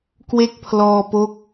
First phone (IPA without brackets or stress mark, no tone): k